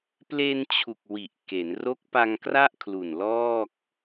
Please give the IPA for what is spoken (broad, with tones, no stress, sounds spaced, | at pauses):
p l e˧ n t͡ɕʰ u˨˩ k̚ w i˨˩ ʔ k e˩˦ n r o˦˥ k̚ p a˧ ŋ k r a˥˩ ʔ kʰ l u˨˩ n l ɔː˥˩ k̚